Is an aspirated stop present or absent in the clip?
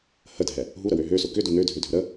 absent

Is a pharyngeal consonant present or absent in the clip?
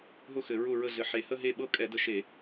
present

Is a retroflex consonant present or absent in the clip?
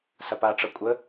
present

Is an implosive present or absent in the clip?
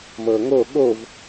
present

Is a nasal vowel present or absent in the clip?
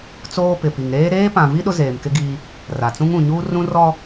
present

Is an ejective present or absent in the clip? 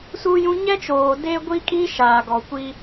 present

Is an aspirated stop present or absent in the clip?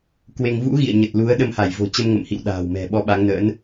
absent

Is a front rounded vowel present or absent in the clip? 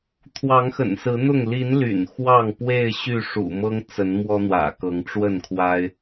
present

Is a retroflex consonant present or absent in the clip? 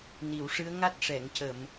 present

